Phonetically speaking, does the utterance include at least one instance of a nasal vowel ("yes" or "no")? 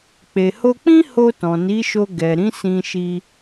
yes